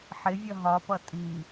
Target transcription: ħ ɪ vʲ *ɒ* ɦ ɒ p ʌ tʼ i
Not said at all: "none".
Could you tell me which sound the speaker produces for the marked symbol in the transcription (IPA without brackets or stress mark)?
ʌ